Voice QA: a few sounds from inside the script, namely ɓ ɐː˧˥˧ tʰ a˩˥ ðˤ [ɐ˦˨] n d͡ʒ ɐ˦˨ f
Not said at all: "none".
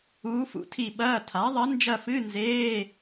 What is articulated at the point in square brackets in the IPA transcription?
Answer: ɐ˧˥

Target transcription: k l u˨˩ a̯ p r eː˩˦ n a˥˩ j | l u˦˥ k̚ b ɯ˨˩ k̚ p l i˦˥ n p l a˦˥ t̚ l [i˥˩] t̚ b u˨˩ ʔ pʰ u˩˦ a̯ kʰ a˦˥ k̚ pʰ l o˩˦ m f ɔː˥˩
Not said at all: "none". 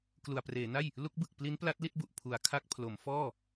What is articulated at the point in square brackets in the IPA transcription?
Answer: i˥˩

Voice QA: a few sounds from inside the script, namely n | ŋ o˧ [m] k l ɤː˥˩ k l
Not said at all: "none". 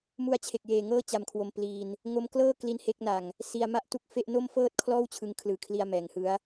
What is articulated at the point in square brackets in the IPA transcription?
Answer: m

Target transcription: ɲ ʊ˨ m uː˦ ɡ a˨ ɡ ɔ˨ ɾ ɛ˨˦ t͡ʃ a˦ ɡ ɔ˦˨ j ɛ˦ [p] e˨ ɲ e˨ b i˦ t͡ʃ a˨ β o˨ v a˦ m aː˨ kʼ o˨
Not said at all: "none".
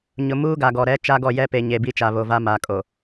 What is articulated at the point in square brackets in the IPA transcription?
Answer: p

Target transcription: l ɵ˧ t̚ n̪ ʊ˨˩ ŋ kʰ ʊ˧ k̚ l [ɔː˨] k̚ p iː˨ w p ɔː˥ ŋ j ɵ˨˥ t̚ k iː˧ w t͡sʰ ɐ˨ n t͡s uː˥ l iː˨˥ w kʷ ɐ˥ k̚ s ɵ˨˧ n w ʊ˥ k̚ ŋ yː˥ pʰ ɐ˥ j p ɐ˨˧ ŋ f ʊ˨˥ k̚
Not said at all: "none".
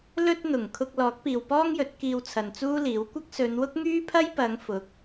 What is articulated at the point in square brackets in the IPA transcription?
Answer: ɔː˨˥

